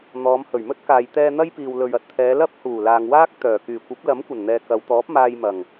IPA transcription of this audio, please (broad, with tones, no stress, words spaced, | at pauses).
n̪ɔː˨˧mhɵ˨˩ɥmɵ˥t̚ kaː˨jt̪ɛː˧ n̪ɐ˥j piː˨wlɵ˨ɥɐ˧t̚t̪ʰɛː˨˧ lɐ˥p̚huː˨˩laː˨ŋ waː˥k̚t̪œː˨˩ kyː˨˩kʷɐ˨˥p̚lɐ˨˥m kʷɐ˨˩nn̪ɛː˨ kɐ˨˧wt̪ɔː˨˥p̚ maː˧jmɐ˨˩ŋ